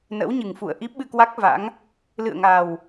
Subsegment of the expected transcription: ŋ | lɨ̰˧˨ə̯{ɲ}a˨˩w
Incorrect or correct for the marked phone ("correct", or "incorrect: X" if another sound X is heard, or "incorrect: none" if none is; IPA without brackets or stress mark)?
incorrect: ŋ